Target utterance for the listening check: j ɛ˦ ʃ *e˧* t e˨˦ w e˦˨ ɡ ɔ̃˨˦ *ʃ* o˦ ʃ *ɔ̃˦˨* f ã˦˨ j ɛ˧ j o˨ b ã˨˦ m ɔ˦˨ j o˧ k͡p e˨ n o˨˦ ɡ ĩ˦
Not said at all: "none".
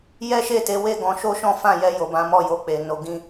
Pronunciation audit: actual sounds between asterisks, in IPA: e˦˨, ʃ, ɔ̃˦

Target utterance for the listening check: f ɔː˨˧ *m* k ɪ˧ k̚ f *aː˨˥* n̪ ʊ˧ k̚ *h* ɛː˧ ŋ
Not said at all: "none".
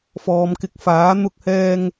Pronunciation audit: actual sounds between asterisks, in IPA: m, aː˨˥, h

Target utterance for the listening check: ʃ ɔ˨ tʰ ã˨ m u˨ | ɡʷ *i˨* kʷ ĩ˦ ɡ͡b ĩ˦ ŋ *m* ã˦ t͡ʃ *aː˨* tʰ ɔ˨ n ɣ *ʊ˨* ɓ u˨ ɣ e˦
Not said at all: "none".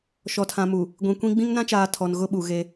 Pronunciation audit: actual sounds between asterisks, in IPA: ĩ˨, n, aː˨, ʊ˦

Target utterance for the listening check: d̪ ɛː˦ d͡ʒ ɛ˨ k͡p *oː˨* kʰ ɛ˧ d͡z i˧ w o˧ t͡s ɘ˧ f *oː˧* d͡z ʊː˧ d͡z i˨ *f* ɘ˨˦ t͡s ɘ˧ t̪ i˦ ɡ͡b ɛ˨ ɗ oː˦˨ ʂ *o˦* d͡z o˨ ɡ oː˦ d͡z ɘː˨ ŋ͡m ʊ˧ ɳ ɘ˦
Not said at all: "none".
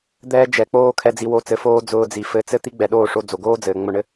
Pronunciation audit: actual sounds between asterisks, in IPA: oː˦, oː˦, f, o˧

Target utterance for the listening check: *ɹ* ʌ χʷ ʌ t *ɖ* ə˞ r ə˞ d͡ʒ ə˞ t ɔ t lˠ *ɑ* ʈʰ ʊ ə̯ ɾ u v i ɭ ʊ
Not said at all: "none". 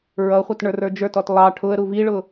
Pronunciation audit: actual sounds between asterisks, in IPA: ɹ, ɳ, ɑ

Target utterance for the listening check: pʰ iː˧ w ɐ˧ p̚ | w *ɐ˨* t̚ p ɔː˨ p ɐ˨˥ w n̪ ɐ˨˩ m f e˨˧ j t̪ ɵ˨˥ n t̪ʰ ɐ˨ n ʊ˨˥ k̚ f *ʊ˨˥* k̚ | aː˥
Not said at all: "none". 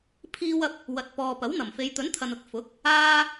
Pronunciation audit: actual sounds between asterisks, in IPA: ɐ˨, ʊ˨˥

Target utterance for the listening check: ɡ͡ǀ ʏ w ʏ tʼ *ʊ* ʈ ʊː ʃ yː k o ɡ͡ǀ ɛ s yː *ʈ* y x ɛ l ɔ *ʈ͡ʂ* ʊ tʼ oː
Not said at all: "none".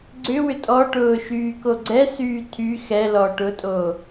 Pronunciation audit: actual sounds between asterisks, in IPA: ɔ, tʰ, ʈ

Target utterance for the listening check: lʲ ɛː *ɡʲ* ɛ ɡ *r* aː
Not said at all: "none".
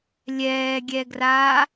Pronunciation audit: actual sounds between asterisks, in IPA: ɡʲ, r

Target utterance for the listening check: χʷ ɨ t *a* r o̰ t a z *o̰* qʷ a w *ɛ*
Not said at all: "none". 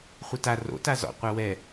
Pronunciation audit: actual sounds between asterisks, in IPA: a, ɔ̰, ɛ

